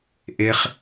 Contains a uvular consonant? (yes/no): yes